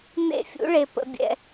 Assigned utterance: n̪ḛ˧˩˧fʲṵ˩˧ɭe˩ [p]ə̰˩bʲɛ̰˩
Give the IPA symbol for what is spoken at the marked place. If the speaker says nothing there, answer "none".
p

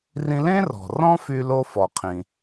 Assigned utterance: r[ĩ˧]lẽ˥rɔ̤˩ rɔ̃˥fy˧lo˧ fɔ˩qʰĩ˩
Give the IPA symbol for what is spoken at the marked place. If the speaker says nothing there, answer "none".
ĩ˧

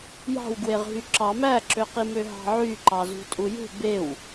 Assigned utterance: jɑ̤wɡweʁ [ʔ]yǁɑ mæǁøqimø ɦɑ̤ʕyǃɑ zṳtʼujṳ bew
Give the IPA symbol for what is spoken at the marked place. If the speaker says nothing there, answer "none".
ɦ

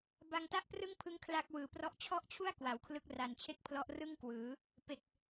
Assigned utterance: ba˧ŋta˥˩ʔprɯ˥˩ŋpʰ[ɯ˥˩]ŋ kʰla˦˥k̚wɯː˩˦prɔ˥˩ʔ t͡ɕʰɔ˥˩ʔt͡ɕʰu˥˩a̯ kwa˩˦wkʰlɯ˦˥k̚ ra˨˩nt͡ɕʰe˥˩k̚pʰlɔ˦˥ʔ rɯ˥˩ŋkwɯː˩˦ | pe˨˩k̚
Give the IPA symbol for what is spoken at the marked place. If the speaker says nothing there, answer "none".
ɯ˦˥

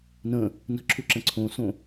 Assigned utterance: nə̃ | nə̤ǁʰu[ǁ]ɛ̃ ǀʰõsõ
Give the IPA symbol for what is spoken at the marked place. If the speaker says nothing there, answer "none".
ǁ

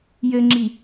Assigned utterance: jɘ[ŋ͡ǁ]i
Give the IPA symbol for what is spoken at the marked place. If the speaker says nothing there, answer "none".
ŋ͡ǁ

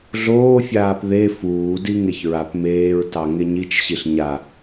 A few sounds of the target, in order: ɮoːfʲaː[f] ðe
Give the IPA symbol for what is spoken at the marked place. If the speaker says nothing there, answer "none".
p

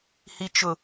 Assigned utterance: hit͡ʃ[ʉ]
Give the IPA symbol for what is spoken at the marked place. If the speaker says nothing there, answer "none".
ʊ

